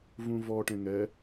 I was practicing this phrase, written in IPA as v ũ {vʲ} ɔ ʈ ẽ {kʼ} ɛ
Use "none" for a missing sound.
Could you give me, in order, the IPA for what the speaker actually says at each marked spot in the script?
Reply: v, ŋ

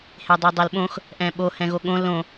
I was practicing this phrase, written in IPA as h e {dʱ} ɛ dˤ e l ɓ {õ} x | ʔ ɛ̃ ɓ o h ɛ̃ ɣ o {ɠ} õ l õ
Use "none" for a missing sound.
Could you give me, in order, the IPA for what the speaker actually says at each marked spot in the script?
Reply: dˤ, õ, ɠ

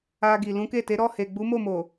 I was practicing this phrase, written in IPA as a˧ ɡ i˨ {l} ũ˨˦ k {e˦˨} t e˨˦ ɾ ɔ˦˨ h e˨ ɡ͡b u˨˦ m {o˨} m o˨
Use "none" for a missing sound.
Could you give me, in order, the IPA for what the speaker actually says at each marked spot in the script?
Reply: l, e˦˨, o˦˨

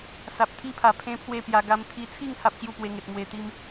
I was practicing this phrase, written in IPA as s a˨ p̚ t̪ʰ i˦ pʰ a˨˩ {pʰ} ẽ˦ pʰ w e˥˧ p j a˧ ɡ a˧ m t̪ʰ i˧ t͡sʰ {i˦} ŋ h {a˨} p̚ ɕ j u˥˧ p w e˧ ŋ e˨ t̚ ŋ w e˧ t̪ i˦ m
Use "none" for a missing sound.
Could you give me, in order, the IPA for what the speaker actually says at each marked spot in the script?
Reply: pʰ, i˥˧, a˦

